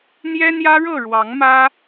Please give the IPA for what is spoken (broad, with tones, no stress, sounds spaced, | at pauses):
n̪ j ɛ˦ n̪ j ä˦ ɻ ɤ˥˨ ɻ w ɑ˨˦ ŋ m ä˦